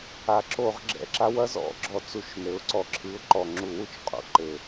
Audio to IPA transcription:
a˩˧ ǁo˧˩˧ʁɡ͡ǁɛ̰˨˩ǁa˥ wɐ˥zɔ̰˧˩˧ɡ͡ǁɔ˧˩˧ t͡su˧˩˧ʃnɘ˩˧ʊ̯ǀɔ˧˩˧ ǁʰɨ˨˥ʊ̯ǃɔ˨˩ ŋ͡ǁu˧˩˧wu˥t͡ʃqʼṵ˧˩˧ ǃɘ˨˩

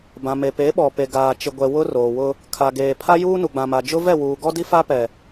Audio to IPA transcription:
bã˨me˨ pe˨˦ɓɔ˨pe˨ ɡaː˨t͡ʃɪ˨ɡʷɛ˨ wʊ˦roː˨wʊ˦ | kʰa˨ɡeː˨pʰa˦ juː˦nu˨ɡ͡bã˨ma˨ d͡ʒʊ˦vɛ˦˨wuː˨ ɡɔ˦di˦fa˦pɛ˨

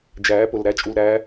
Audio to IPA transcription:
d͡ʒæː˨˦pʊ˨lɾæ˦ t͡ʃʼu˨lɾæː˨˦

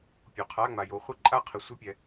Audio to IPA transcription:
pʲo˨qʰa˧˥˧ŋ͡ma˨jo˨˦ χʷɪ˥˩ǃʼa˥˧qʰɪ˨ sʷɪ˥˧pʲɛ˨

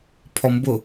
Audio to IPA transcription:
pʰɔmbʊ

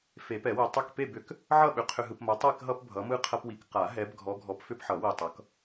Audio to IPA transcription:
fe˨˩˦pɛ˨˩˦we˨ tˤʏ˥˨k pe˥˨bʏ˨˩˦k | ʕʌ˥˨ɓʏ˨˦ qʰʏ˨ɦɯ˨pmɐ˨˦ tˤe˥˨kɦʌ˦p bʱʌ˨˦mɯ˥˨qʰɐ˦pwi˨˦k qa˨˩˦ɦɛ˨˦b ɡʱɔ˨˦ɡʱɔ˨˦p fʏ˦pħʌ˨˩˦ wi˨tˤʌ˨˦k

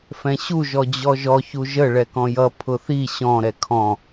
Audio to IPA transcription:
fɛ̃ɕu ʒɔd͡ʑɔʒɔ çuʒə ɭɛkɔ̃jʌ pʰʊθi ɕɔ̃ ɾɛkʰɔ̃

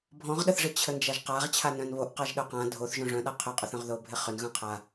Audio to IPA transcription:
bʱɔ̃ʁɗəθʐɪ t͡ɕʰənd͡ʒaʒqaʁ t͡ɕʰanœ̃nβoʔqaʒ ɗœqã dʱoθ ʒõʐœ̃ɗa qʰʏqʼʏθœ̃ʁðo bʱɪχʏnɣœ̃ qʰa

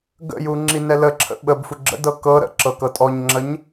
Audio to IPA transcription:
ɡə̰ju ŋ͡ǁinɛləǁʰə̰ ɓəbfu ɡ͡ǁə̰dɤ kɤ ɾə̰ ǁɤkɤtʼɔɲŋ͡ǁəɲ

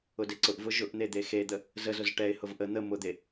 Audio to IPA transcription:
ʊdeǀʊʔvʊ ʒʊʔn̪e d̪exed̪ə | zəzʊz ʈɛɪ̯hʊv ʔə n̪ə mʊd̪e

